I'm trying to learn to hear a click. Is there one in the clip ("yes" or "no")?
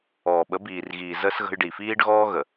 no